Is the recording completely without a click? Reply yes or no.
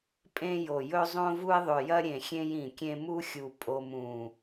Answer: yes